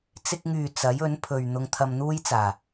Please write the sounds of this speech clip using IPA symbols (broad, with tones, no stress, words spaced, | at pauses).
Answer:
t͡sɪ˧k̚ŋyː˨ t͡sɐ˨˥jɵ˨˥npʰɵ˨ɥ n̪ʊ˧ŋt̪ʰɐ˧mn̪uː˥jt͡saː˨˩